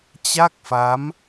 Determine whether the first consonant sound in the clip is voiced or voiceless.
voiceless